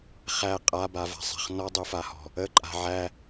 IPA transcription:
χ æ qʼ a b a v a̤ sˤ a̤ χ n ɔ dˤ u f a h ɔ̤ | ə ǃʼ a̤ ʕ æ

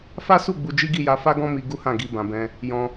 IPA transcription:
f a˦ s u˦˨ ɡ͡b u˧ d͡ʒ i˦ ɡ i˦˨ j a˧ f a˦ ɡ ɔ̃˦ m i˧ ɡ u˦ h ã˦˨ ɡ i˧ b ã˨ b ɛ̃˧ | j ɔ̃˧

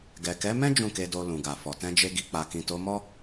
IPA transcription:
ɡ ɛ˨ k ɛ˨˦ m ɛ̃˦ d͡ʒ ũ˦˨ k e˧ d o˧ l ũ˨ ɡ a˨ f ɔ˨ t ɛ̃˧ d͡ʒ e˧ ɡ i˨ k͡p a˨ k ĩ˨ t o˨˦ m ɔ˦

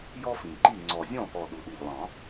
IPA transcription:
j ɔ˥ f ĩ˨˩ ǃ i˥˩ ŋ͡ǀ ɔ˨˩ zʲ ɔ̃˥˩ p ɔ˨˩ ɗ u˨˩ ɗ i˨˩ ʎ lˠ ɑ̃˨˩˦

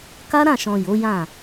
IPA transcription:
k a˦ ɾ ã˦˨ ʃ ɔ̃˨ j o˨˦ j ã˦˨

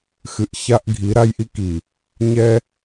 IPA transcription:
x ɨ˨ ʔ ç a˦ ʔ ɡʱ i˨˦ ɾ a˦ j ʔ i˦ k i˨ | ɲ ɛ˦

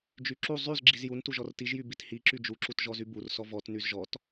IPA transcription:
d͡ʒ y ǁ u zˤ y z ɡ͡ǁ i z j u n t u ʒ ɔ r t i ʒ j y b i t h i ǁ y d͡ʒ u ǁ u t ʒ ɔ z y b u r s ɔ v ɔ t n y z ʒ ɔ t

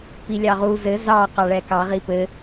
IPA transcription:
p i lʲ ɑ ʁ u z ɘ z ɑ q ɑ ɭ ɛ k ɑ ʁ i p ɘ

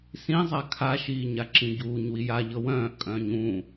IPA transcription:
s ĩ zˤ a kʰ a ʃ iː ɲ a ǁ ĩ ɟ uː ɲ w i j a ʎ ɤ w œ̃ː ʔ kʼ œ̃ː ɲ ũ

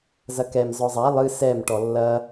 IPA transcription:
z ɐ k ɛ m z ɔ zˤ a lˠ ɨ s ɛ m ʈ ɔ lː ɐ

